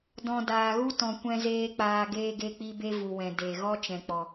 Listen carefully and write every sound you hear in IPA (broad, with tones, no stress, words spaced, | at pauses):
dɔ̃˧ daː˨ɣu˦ tɔ̃˨ kʷɛ̃˧zeː˧ k͡paː˧ ɡeː˧ɡe˧k͡pi˧ be˦vu˨wɛ̃˨ de˨ ɣɔ˦t͡ʃɛ̃˨k͡pɔ˨